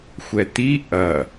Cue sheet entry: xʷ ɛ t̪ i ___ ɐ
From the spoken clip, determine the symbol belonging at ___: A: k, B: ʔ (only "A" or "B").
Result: B